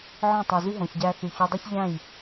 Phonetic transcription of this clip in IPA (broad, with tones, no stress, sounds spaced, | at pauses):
ʕ ɔ̃˦˨ tˤ y˨ z y˦ ɦ õ˨ ç ɟ æ˧ θ y˨ ç o˧ dˤ ø˦ ç ʎ æ̃˦˨ j